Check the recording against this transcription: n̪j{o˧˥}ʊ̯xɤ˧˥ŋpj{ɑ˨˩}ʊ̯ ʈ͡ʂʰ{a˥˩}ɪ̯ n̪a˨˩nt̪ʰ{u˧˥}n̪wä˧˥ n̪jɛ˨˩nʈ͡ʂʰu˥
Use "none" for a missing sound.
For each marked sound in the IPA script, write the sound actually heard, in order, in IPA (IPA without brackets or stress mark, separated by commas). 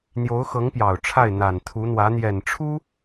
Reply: o˧˥, ɑ˨˩, a˥˩, u˧˥